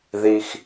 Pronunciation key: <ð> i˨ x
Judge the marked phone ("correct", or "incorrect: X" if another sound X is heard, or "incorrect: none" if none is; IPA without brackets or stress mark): correct